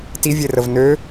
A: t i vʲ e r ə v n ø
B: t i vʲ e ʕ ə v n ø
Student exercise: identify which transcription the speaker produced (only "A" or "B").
A